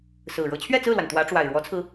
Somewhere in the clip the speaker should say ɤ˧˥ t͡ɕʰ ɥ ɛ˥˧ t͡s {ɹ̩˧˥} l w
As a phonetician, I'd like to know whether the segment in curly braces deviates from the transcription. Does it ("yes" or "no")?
yes